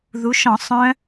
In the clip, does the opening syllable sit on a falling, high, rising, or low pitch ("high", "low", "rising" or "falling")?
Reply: rising